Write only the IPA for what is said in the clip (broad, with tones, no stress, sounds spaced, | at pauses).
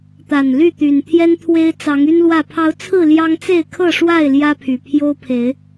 t̪ a˨˩ n l y˥˨ t̪ y˨˩ n t̪ʰ j ɛ˦ n t̪ʰ w e˦ ɪ̯ t͡s ɑ˨˦ ŋ y˦ n l w ä˥˨ pʰ ɑ˨˦ ʊ̯ t͡sʰ ɹ̩˥˨ l j ɑ˦ ŋ t͡s e˥˨ ɪ̯ kʰ ɤ˥˨ ʂ w a˥˨ ɪ̯ l j ä˦ pʰ y˨˩ pʰ j o˦ ʊ̯ pʰ e˨˦ ɪ̯